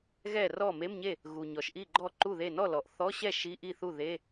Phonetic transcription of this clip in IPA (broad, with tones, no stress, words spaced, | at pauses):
ɣɛ˥˩rɔ˥˩ me˧˥˧mɲe˥˩ | ɣu˩ ɲɔ˩ʃʔi˥˩ɡ͡ǃɔ˥˩ ǃu˥˩ðe˥˩ nɔ˥˩lɔ˩ʔ θɔ˧˥˧ɕɛ˥˩ ʃi˧˥˧ʔi˥˩θu˥˩ ðe˧˥˧